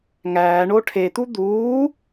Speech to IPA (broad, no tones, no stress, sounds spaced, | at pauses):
ŋ æː ɳ o ʈʰ e t̪ u d̪ uː